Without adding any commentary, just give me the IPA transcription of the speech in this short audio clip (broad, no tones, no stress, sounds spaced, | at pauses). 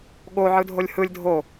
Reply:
ɠ o ʕ ɯ dʱ o lʲ h ɯ lʲ dʱ o